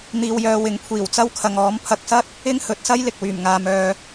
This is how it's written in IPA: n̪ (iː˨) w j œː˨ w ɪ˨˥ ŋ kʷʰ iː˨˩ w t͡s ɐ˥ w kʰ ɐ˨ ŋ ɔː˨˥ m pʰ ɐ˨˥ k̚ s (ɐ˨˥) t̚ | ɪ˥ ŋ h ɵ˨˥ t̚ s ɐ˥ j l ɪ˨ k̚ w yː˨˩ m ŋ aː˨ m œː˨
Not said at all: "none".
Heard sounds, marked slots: iː˨, ɐ˥

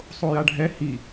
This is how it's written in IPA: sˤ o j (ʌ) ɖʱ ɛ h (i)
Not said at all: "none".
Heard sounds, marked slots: a, i

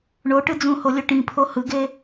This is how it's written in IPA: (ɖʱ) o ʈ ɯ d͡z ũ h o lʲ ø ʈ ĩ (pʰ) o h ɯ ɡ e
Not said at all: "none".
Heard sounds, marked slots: ɳ, pʰ

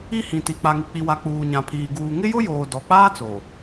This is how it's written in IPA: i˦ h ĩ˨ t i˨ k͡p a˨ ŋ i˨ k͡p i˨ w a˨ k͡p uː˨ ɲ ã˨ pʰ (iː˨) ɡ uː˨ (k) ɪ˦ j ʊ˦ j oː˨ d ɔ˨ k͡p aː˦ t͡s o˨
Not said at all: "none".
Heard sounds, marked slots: iː˨, ŋ

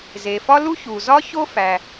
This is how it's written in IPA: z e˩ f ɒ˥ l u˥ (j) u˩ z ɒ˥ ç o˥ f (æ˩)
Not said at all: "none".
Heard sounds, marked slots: ç, æ˩

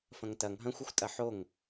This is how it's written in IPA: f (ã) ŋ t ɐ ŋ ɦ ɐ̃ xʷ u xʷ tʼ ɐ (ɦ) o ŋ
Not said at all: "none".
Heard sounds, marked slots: ɐ̃, ħ

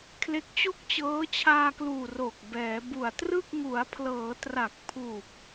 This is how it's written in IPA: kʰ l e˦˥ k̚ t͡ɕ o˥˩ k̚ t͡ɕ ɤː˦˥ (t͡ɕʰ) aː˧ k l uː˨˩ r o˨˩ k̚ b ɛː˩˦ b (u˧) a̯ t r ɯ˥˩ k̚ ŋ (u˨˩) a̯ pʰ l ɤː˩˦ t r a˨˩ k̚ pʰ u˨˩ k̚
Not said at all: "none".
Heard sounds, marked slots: t͡ɕʰ, u˨˩, u˩˦

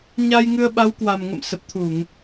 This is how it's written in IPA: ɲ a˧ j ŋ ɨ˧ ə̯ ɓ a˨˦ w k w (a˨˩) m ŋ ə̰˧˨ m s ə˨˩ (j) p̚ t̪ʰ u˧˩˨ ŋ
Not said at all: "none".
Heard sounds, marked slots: a˨˩, none

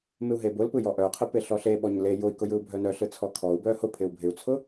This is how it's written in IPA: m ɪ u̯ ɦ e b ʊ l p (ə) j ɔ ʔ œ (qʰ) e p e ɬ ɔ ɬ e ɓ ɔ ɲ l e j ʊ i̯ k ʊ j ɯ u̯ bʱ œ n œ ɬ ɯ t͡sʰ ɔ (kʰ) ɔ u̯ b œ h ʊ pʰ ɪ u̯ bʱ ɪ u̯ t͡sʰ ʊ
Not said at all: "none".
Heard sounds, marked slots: ɯ, qʰ, kʰ

